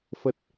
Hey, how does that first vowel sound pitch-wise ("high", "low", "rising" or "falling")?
low